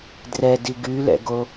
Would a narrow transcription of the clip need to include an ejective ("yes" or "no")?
no